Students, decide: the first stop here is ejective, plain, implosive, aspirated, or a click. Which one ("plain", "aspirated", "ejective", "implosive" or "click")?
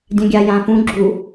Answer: plain